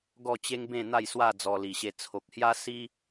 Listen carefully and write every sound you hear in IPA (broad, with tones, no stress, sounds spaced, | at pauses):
ɡ ɔ˥˧ t͡ɕ e˦ ŋ b ẽ˥˧ n̪ a˥˧ j s w a˥˧ d͡z ɔ˧ l i˨˩ ɕ e˧ t͡sʰ o˨ k̚ h j a˦ s i˦